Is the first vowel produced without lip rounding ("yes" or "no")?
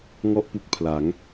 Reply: no